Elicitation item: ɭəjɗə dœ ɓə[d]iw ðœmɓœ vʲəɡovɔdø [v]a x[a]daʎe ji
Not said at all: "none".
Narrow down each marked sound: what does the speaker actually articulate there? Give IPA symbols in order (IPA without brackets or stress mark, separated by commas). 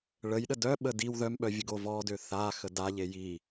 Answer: d, θ, ə